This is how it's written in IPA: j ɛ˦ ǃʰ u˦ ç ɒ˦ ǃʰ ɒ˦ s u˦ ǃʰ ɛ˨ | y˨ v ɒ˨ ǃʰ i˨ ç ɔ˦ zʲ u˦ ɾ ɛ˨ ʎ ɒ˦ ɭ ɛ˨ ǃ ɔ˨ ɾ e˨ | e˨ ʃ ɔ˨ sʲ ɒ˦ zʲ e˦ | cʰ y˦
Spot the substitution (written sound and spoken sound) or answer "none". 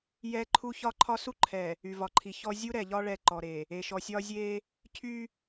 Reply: none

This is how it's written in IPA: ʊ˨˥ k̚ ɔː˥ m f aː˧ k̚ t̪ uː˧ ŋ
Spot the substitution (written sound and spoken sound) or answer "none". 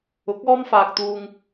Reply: none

